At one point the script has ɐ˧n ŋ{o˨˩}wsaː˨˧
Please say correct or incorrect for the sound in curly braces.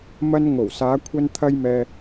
correct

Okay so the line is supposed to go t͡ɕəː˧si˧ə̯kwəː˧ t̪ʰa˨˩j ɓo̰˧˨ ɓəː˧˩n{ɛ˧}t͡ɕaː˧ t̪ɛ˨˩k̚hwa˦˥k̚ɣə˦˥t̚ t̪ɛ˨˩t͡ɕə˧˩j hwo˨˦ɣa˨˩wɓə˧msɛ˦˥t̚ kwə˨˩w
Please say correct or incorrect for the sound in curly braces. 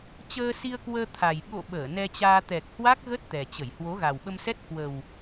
correct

